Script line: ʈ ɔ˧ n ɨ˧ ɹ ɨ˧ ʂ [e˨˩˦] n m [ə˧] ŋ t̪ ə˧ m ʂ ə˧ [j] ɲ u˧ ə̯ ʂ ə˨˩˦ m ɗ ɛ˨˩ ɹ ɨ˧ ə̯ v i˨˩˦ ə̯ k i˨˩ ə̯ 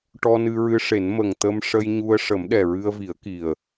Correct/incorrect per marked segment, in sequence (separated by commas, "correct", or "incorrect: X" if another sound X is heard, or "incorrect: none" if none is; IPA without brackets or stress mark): correct, incorrect: ə˨˩, correct